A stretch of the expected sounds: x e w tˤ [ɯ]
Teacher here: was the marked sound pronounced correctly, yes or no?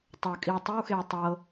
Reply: no